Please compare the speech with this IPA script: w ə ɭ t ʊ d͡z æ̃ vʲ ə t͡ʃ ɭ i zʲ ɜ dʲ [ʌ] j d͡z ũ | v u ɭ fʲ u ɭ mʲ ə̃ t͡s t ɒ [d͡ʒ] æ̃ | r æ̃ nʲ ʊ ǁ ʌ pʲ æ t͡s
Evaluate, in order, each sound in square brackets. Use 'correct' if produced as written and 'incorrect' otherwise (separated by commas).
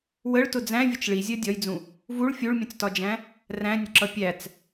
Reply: incorrect, correct